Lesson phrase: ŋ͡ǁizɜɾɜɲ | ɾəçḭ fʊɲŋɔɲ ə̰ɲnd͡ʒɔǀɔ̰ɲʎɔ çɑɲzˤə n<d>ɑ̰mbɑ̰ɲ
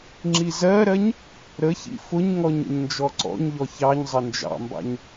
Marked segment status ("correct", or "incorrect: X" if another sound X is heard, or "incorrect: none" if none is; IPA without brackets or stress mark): incorrect: d͡ʒ